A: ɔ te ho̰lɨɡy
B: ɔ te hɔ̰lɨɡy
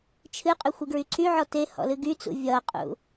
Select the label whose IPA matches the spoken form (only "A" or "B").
B